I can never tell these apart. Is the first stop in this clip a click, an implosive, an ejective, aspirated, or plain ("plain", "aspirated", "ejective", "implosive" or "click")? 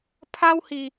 aspirated